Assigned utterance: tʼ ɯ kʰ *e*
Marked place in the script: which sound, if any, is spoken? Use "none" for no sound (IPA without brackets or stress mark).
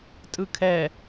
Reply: ɛ